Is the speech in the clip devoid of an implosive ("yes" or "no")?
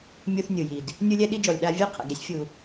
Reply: no